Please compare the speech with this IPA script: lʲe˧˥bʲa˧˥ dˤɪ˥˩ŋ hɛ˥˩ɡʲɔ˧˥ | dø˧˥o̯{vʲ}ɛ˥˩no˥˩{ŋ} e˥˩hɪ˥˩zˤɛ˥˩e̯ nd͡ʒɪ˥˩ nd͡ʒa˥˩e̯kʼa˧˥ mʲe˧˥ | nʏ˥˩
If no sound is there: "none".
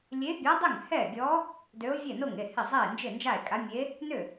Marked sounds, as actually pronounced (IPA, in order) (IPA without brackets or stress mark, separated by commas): vʲ, ŋ